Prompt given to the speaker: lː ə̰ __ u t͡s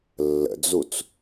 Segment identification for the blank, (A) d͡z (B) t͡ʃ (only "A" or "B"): A